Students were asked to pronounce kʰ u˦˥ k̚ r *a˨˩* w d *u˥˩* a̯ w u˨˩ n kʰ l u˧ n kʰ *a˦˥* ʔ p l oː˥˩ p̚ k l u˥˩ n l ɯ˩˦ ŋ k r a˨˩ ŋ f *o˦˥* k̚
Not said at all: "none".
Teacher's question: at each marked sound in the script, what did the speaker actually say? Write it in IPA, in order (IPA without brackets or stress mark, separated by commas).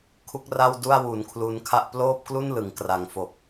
a˥˩, u˥˩, a˥˩, o˨˩